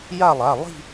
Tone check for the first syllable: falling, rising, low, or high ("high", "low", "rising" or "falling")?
falling